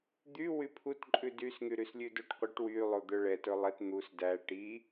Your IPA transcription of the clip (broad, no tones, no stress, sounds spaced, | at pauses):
d̪ y w y pʰ u t ǃʼ ʉ d y s ŋ y ɾ y s lʲ ʉ d o ʈ qʷ i ʈ w y lˠ o d̪ œ ɭ ɛ t ɵ lˠ ɛ t n̪ u s d æ ʈ i